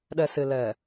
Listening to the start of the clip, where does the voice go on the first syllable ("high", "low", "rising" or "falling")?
low